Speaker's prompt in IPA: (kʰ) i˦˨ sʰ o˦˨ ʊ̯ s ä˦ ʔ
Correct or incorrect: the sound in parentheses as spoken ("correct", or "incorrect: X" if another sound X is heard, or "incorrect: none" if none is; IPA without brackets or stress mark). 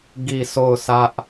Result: incorrect: ɡ